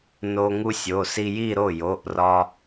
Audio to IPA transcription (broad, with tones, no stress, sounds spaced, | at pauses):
n o˧ ŋ u˧ sʲ o˩˧˩ s i˧ j i˥˧ ɾ o˥˩ j o˩˧˩ ʔ r ɒ˧